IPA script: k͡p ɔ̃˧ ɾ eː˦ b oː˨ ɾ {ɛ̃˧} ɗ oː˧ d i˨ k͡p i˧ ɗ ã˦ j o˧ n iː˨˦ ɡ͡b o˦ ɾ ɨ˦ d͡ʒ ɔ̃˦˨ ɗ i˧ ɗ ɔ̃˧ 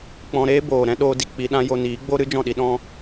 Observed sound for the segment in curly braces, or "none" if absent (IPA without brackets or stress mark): ɛ̃˦